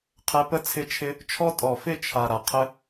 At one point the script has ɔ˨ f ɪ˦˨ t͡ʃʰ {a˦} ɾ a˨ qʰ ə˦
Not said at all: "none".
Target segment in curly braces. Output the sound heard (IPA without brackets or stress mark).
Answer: a˨